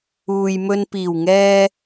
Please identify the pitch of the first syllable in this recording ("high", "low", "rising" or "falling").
low